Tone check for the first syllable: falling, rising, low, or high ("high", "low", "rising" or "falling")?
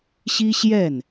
high